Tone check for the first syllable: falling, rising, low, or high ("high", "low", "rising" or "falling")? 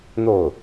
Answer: falling